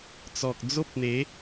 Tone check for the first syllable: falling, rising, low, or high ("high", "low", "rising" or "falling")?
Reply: low